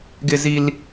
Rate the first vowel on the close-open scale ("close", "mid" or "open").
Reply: close